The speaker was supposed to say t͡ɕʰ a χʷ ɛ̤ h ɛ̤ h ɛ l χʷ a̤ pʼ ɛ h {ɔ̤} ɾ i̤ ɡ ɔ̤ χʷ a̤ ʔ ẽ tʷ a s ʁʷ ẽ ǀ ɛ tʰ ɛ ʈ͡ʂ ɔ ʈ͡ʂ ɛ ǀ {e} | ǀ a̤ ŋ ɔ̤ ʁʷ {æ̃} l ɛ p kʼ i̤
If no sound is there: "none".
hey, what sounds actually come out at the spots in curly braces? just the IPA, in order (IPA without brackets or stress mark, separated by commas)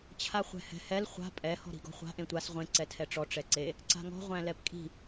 ɔ̤, e, æ̃